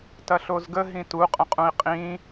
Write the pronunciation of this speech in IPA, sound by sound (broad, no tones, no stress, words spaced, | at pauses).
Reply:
tɐɬozɡə ɦĩtu qʼə̃qʼũi̯qʼĩ